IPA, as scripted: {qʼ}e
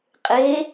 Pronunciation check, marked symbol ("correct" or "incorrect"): correct